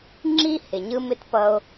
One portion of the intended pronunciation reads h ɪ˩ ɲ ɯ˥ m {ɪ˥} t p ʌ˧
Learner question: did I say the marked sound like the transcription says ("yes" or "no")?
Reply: yes